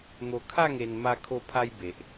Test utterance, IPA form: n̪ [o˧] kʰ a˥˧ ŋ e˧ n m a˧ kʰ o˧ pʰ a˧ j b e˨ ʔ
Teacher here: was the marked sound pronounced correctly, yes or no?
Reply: yes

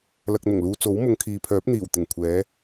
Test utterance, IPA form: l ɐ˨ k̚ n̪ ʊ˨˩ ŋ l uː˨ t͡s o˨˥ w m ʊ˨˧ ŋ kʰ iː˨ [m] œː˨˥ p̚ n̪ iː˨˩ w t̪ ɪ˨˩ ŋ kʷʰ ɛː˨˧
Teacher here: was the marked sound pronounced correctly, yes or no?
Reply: no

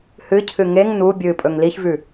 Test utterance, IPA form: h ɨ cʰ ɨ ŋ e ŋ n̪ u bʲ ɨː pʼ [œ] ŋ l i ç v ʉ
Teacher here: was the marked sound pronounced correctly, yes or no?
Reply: no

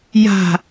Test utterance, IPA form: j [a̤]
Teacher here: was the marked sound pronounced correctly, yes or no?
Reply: yes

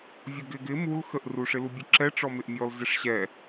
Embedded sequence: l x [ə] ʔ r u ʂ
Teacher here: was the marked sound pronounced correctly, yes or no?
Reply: yes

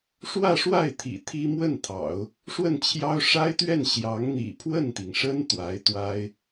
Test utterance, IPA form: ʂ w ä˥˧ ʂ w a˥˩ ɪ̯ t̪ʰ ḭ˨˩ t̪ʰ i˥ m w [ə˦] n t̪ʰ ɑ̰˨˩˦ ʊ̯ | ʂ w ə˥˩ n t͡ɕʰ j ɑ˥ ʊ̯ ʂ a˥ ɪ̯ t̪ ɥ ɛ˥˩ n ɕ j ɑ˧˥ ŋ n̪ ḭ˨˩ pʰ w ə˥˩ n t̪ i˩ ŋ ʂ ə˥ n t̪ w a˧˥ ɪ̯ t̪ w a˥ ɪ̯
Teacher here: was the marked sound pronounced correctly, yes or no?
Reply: no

